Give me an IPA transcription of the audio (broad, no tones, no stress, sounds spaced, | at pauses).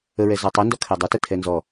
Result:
ə ɹ ɛ z ɔ tˤ ɵ n d ɔ kʰ ɛ dˤ ə t ə tʰ ɛ n z ɔ